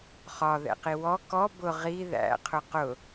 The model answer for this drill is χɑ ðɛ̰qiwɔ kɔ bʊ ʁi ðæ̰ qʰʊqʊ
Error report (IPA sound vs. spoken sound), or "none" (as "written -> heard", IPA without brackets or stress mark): ɑ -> ɒ